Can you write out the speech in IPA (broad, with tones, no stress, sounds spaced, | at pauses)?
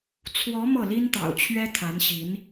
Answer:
t͡sʰ w ɔ˧˥ m ɤ˥˩ l i˥ n t̪ ɑ̰˨˩ ʊ̯ t͡ɕʰ ɥ ɛ˥ t̪ʰ a˧˥ n ɕ i˧˥ n